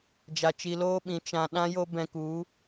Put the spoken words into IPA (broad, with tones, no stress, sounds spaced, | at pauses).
d͡ʒ a˧ t͡ʃ i˧ l oː˦ ɓ ĩ˨˦ t͡ʃ ã˧ ɗ ã˦ j o˦ b ɛ̃˧ k u˨˦